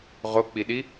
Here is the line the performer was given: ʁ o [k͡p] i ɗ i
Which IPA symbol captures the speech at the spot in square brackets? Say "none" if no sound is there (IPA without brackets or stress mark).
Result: k͡p